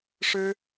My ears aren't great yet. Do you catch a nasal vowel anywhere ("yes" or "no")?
no